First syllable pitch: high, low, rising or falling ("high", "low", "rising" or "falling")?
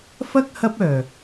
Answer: high